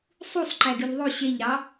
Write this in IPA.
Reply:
sˤ u sˤ ǃ æ ɡ y ʎ ðˤ o ɕ e ʎ ɾ ɑ

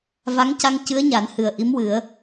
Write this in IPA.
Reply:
v a˧˥ ŋ c a˧ ŋ c ɨ˧˥ ə̯ ɲ a˨˩˦ n h ɨ˨˩ ə̯ ʔ i˧˥ m w ɨ˨˩˦ ə̯

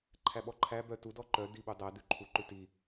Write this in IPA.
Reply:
ǃʰ æ ɓ ɔ ǃʰ æ b œ t u d ɔ ǃ œ d i ɓ u dˤ æ d ʉ ǃʰ u ǃ ʉ t i

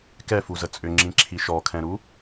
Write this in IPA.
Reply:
k ɛ f u z ə t͡sʼ ʏ ŋ͡ǁ ĩ ǁʰ i ʃ ɔ kʰ ɛ̃ ɾ u

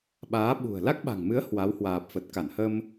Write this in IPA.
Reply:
ɓ aː˨˦ ɓ ṳ˨˩ ə̯ l a˦˥ k̚ ɓ a̤˨˩ ŋ m ɨ˨˦ ə̯ h w a˨˦ w h w aː˨˩ p̚ f ə˨˩ t̚ k a˧˩ n h ə˧ m

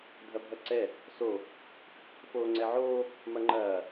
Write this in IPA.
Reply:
dʱ ɐ bʱ ɐ ǀ ɛ | s o | f oː ŋ͡ǀ ɛ ʕ oː | m ɐ ŋ͡ǃ ɐː

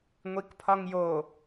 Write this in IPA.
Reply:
ŋʷ i k pʰ ɒ ŋ j o

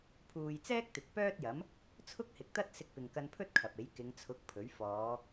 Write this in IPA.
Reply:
pʰ uː˨ j t͡s ɛː˥ k̚ t̪ ɪ˨ k̚ p œː˥ t̚ j ɐ˨˥ m | t͡sʰ ʊ˥ k̚ h ɪ˨ k̚ t̪ ɐ˥ t̚ s ɪ˧ k̚ p ɪ˨ ŋ k ɐ˧ n pʰ ɵ˥ t̚ kʰ ɐ˨ p̚ e˨˥ j k ɪ˨˧ ŋ t͡sʰ ʊ˨˥ k̚ pʰ ɵ˨˥ ɥ f ɔː˨˧

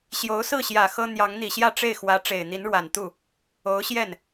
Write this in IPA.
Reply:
ɕ j o˧˥ ʊ̯ s ɹ̩˥˩ ɕ j ä˨˩ x ɤ˥ n̪ j ɑ˧˥ ŋ n̪ i˨˩ ɕ j ä˥˧ ʈ͡ʂ e˥˩ ɪ̯ x w ä˧˥ ʈ͡ʂ e˨˩ ɪ̯ n̪ i˧˥ n ɻ w a˨˩ n t̪ u˥˩ | o˧˥ ʊ̯ ɕ j ɛ˥˩ n

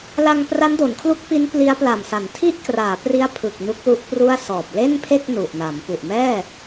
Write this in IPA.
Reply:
l a˧ ŋ p r a˦˥ n d o˩˦ n kʰ l u˦˥ k̚ p i˦˥ n p l i˦˥ a̯ p l a˨˩ m s a˩˦ n tʰ i˥˩ ʔ k r aː˩˦ p r i˦˥ a̯ pʰ ɯ˨˩ k̚ n u˦˥ k̚ l u˦˥ ʔ p r u˥˩ a̯ s ɔː˨˩ p̚ l e˥˩ n pʰ e˥˩ k̚ n u˨˩ ʔ n a˩˦ m p u˨˩ ʔ m ɛː˥˩

